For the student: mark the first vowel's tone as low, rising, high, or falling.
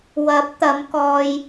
rising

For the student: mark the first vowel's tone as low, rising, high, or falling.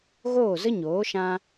falling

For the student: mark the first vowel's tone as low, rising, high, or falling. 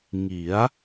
rising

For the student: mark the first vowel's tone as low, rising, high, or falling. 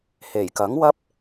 low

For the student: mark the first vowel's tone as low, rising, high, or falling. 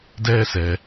high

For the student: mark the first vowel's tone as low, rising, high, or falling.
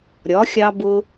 rising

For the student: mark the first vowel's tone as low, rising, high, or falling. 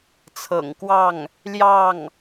low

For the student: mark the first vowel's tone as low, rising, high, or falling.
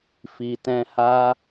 low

